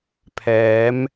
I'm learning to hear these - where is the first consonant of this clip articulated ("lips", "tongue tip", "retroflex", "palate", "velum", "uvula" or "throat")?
lips